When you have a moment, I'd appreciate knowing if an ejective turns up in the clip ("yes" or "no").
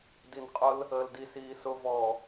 yes